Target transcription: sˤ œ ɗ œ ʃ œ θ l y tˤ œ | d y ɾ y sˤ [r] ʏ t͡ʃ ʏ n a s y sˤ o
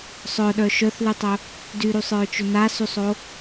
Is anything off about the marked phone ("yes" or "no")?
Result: yes